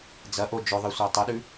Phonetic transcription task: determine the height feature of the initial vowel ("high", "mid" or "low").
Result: low